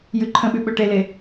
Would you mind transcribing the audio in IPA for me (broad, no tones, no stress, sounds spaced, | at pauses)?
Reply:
j ʉ ǃʰ ə̃ ɓ ʉ ɓ ø ʈ e l e